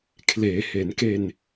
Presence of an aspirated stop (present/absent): present